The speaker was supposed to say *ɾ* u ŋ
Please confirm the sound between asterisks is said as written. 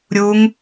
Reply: no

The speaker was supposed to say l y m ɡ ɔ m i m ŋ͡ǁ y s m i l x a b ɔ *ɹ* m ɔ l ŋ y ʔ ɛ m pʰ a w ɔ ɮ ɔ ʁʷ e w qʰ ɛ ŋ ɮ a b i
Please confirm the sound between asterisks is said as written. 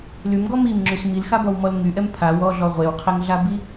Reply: no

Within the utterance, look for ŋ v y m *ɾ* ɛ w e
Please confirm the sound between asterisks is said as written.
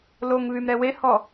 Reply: yes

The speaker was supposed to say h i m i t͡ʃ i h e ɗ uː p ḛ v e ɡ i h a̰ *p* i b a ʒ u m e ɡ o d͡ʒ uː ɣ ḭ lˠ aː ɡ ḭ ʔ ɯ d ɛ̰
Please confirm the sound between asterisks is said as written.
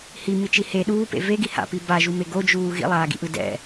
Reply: yes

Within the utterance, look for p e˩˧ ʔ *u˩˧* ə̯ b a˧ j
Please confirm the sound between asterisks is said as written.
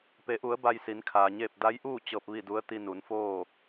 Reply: yes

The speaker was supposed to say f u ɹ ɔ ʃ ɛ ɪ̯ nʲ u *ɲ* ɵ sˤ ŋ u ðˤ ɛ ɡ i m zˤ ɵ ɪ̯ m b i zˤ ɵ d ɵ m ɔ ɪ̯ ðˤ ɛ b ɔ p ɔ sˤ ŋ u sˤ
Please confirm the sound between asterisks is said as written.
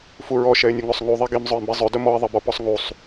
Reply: no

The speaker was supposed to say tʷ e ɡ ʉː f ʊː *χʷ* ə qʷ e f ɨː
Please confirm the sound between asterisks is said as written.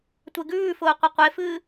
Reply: no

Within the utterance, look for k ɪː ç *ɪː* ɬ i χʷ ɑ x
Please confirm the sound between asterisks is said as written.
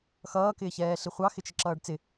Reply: no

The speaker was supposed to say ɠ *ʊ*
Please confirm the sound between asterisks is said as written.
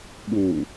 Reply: no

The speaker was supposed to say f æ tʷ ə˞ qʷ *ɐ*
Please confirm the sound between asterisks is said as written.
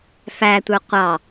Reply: no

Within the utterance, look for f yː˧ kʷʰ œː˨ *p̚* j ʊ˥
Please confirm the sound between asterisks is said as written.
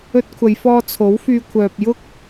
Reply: yes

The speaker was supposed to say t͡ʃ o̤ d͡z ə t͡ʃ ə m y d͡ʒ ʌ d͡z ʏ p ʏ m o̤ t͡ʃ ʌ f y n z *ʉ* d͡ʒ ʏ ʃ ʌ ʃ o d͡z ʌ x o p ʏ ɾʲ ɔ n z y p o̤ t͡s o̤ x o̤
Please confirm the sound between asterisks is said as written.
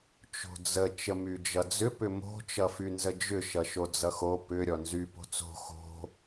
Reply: no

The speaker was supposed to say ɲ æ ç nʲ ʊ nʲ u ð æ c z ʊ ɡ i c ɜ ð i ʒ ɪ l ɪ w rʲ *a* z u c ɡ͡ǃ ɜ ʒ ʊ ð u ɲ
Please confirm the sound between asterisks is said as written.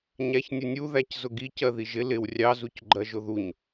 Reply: no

